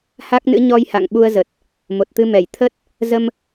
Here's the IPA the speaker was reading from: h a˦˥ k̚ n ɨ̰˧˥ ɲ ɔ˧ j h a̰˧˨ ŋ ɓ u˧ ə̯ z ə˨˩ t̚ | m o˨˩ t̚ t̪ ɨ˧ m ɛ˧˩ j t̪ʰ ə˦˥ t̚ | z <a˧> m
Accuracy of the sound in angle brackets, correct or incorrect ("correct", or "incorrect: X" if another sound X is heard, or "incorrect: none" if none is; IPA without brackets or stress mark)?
incorrect: ə˧